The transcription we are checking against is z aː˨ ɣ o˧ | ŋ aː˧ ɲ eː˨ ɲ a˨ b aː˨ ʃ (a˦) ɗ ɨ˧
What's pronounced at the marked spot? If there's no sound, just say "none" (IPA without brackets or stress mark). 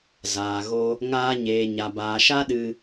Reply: a˦